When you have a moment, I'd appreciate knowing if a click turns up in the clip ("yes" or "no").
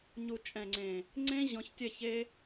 yes